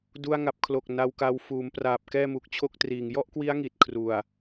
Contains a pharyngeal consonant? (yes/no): no